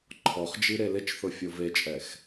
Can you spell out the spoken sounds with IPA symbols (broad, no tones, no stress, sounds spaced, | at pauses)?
ǃʰ ɔ χ d͡ʒ i ɾ e l ɪ t͡ʃ θ ʊ fʲ o v e t͡ʃʼ ɛ x